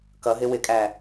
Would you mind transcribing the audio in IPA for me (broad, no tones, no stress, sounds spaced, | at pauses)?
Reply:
k ʌ ɦ ɪ w ɪ kʼ æ